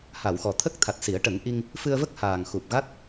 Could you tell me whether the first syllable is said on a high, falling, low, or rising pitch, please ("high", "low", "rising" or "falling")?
low